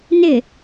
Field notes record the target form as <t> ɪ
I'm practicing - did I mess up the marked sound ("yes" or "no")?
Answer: yes